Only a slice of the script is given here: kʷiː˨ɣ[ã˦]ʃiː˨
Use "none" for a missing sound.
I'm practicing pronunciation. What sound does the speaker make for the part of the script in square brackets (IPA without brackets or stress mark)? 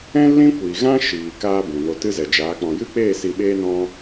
ã˦